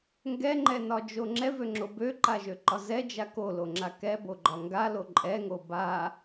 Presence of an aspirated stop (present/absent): absent